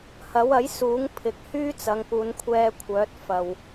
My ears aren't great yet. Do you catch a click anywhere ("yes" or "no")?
no